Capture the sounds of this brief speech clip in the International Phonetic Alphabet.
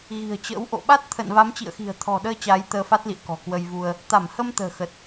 ɣ i̤˨˩ ə̯ t͡ɕ ə̰ː˧˥ w ʔ o̰˧˨ ɓ a˦˥ t̚ t̪ʰ ə̰ː˧˨ n v a˨˦ m t͡ɕ ḭ˧˨ ə̯ x i̤˨˩ ə̯ t̪ʰ ɔ̤˨˩ ɗ əː˧ t͡ɕ aː˨˦ j t̪ əː˧ f a˦˥ t̚ l ḭ˧˨ ə̯ k ɔ̤˨˩ k w ə˧ j v u˧ ə̯ | t̪ a˧˩ m h ə˧ m t̪ ə̤ː˨˩ x ə˨˩ t̚

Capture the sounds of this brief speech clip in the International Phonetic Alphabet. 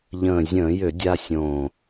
ʎ ə̃ː˨˩ zʲ ə̃ː˧˩˧ j ʏ˧˩˧ dʲ a˧ sʲ õː˨˩

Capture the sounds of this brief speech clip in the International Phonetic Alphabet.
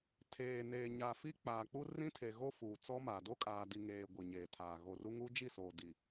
tʰ eː˨ n eː˨ ɲ a˨ f i˦ k͡p aː˨ k͡p u˦ r ĩ˦ tʰ e˨ ɣ o˦ f uː˨ t͡s ɔ˦ m a˨ d o˦ kʼ aː˨ d i˨ ŋ eː˨ ɡʷ i˨ ɲ eː˨ tʰ aː˨ ɣ o˨ r u˦ ŋ u˦ d͡ʒ i˦˨ s oː˨ d i˨

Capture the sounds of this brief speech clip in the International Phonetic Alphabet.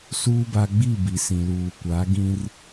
s uː˦ b a˦ ɡ͡b i˦˨ b i˨ s ĩ˨ l uː˨ kʷ a˨˦ ɡ ĩ˦ r

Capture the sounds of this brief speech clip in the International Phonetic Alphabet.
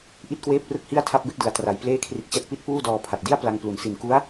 ʔ i˥˩ t̚ k w eː˥˩ p̚ r ɯ˥˩ k̚ h i˥˩ a̯ tʰ a˥˩ p̚ b e˦˥ k̚ d ɯ˩˦ a̯ t r a˩˦ j p l eː˥˩ kʰ r i˦˥ t̚ t͡ɕ a˥˩ t̚ p i˥˩ t̚ p uː˥˩ d ɔː˧ pʰ a˨˩ t̚ d i˥˩ a̯ p l a˧ ŋ p l u˩˦ n s i˨˩ n k u˦˥ a̯

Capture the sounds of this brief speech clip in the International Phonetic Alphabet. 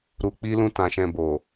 ɾ u˨ k͡p i˧ l ũ˧ t ã˨ ʃ ɛ̃˨ b o˨

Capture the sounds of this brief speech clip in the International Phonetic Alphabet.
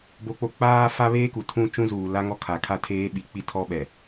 b o˦ k͡p o˦ k͡p aː˦ f a˦ β eː˦ k u˨ tʰ ũ˦ t͡ʃ ũ˦ z uː˨ l a˦ ŋ ɔ˦ kʰ a˨ kʰ a˦ tʰ eː˦ ɓ i˨ k͡p i˦ tʰ ɔ˦ ɓ ɛ˨

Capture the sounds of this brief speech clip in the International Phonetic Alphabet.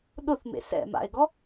ɗ ʊ θ m ḛ s ɛ̰ m a̰ ɪ̯ ɡ ɔ

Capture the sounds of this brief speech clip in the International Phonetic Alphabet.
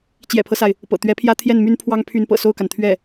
t͡ɕ j ɛ̰˨˩ pʰ ɤ˦ s a˩ ɪ̯ | p ɤ̰˨˩ t̪ ɥ ɛ˧˥ pʰ j ä˥ t̪ʰ j ɛ˥˩ n m y˥ n pʰ w ɑ˥ ŋ pʰ y˧˥ n p ɤ̰˨˩ s o˥˩ ʊ̯ k a˩ n t̪ʰ ɥ ɛ˥˩

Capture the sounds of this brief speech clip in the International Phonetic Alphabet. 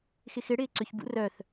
x ɪ x ɪ ɽ ɪː ǀ ʏ ç b ṵ r œ θ

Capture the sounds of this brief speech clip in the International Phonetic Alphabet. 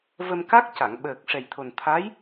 v ə˧ m k a˦˥ k̚ c a˨˩˨ ŋ ɓ əː˨˩ k̚ ʂ ɛ˨˩ j t̪ʰ o˨˩ n t̪ʰ a˧˥ j

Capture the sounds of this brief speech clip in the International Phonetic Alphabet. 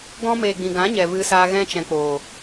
ɡ ɔ̃˧ m eː˨ ɡ͡b ĩ˨ ɡ ã˨˦ ɲ ɛ˨ v ɨ˧ s aː˧ ɣ ɛ̃˧ t͡ʃ ɛ̃˨ k͡p oː˨

